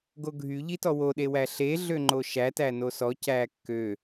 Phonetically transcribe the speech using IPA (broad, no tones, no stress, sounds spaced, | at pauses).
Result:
ɡ o ɡʱ y ʎ i t ɔ w o ɗ e w æ ɬ e ɮ ø ŋ͡ǃ o ʃ æ t æ n o s ɔ c æ kː ø